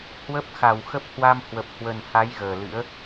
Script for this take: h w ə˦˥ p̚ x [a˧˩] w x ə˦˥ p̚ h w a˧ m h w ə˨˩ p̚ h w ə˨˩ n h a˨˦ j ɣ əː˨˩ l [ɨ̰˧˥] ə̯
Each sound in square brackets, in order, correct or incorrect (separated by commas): correct, correct